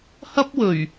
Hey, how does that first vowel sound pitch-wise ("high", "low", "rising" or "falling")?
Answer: high